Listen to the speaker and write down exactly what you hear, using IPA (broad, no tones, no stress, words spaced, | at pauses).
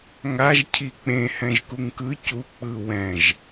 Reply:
ŋaʒ cʰik͡pẽ hɛ̃ʒkuŋkɯ cu k͡pɯ wɛ̃ʒ